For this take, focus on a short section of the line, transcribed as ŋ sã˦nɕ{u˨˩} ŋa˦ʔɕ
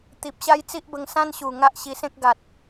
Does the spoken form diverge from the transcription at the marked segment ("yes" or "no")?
no